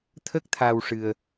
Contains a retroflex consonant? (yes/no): yes